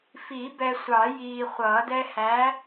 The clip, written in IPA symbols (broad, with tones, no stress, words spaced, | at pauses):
fi˨˩˦bɛ˨sʷɑ˨˩˦ jiː˨χʷʌː˨˩˦d ɛ˦hæ˨˥